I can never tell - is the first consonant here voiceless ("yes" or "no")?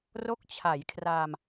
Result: no